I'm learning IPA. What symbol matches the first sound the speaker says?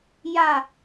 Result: j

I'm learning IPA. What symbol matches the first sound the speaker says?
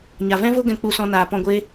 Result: ɲ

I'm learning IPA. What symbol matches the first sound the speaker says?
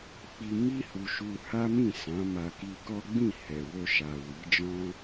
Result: k͡p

